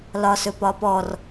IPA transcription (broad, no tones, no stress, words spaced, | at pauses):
lɒsɵpɒpɔr